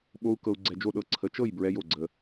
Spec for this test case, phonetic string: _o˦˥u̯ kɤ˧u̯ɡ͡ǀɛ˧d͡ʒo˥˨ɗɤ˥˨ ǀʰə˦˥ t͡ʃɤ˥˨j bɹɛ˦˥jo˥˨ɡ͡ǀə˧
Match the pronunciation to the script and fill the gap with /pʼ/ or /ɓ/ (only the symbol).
ɓ